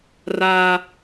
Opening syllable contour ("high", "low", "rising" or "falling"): high